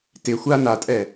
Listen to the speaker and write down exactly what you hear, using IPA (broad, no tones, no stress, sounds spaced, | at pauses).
t ɪ xʷ a n a tʼ ɛ